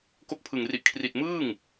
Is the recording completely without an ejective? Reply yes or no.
yes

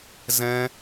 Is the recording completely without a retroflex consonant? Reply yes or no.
yes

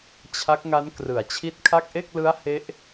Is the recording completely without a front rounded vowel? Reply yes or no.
yes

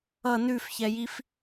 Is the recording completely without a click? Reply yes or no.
yes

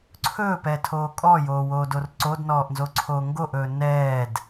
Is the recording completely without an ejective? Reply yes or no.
no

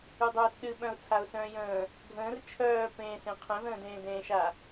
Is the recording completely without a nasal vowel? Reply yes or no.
no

